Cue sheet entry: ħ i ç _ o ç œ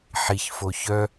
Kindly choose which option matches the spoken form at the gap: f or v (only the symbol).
f